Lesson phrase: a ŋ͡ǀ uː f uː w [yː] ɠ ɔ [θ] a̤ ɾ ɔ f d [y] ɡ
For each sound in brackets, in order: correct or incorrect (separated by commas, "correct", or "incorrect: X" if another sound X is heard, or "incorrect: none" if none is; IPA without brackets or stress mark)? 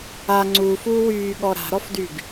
correct, incorrect: ɾ, correct